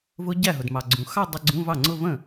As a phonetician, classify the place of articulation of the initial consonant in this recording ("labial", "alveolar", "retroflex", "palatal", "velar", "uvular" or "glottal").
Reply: labial